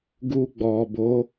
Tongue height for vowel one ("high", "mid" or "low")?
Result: high